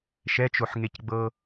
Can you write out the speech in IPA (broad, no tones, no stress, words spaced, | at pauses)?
ʃɛt͡ʃoħŋecɡ͡bɤ